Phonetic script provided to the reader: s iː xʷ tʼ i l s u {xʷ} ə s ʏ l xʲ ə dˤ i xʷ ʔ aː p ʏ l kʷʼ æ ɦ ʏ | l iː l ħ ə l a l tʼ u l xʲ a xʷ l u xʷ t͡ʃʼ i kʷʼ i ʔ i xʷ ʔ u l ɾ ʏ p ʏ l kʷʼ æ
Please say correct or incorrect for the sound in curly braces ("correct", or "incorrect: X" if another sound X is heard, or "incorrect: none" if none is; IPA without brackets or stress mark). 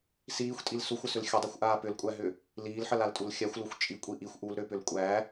correct